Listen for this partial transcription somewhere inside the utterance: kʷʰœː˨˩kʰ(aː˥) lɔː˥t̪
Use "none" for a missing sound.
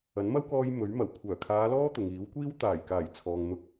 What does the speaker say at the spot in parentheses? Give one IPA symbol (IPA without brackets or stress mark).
aː˨˧